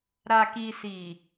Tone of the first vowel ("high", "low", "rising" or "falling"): low